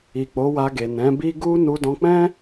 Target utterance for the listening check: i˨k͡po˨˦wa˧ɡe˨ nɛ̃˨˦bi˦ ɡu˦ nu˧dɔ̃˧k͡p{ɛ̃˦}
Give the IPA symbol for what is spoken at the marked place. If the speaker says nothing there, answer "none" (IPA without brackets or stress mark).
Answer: ɛ̃˦